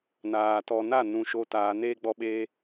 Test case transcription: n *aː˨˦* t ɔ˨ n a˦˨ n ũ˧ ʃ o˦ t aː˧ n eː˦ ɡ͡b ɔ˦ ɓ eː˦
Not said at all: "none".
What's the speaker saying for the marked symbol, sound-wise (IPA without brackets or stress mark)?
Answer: aː˨